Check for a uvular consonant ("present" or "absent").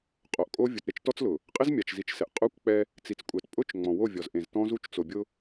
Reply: present